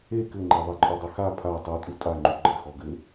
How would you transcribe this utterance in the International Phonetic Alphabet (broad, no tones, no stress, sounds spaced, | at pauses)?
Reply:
e k ɘ ŋ͡ǃ e ðˤ e ǃʼ ɔ dˤ ɘ x a pʰ a tˤ u tʼ u tʼ a ŋ͡ǃ u ɡ͡ǃ ɘ x ɔ ɡ ɘ